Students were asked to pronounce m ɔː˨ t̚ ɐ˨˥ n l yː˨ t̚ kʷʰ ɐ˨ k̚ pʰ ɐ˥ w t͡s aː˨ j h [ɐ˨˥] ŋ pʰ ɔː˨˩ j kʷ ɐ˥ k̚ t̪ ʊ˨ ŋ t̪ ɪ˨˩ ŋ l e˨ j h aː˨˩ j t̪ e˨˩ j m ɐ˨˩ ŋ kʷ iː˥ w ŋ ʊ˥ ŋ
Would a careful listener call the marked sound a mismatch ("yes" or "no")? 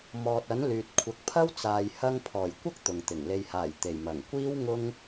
yes